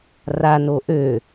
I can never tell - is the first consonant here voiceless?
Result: no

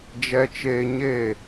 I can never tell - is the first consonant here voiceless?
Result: no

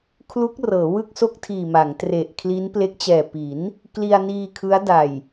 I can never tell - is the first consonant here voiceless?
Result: yes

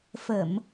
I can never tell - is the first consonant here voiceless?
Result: yes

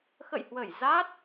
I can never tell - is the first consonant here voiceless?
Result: yes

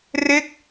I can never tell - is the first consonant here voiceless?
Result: no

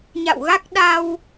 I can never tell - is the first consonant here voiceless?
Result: no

